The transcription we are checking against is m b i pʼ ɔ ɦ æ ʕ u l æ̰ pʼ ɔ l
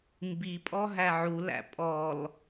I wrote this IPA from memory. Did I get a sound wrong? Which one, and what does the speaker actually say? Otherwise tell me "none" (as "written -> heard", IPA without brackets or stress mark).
none